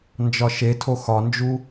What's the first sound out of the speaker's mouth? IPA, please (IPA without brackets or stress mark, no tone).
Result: n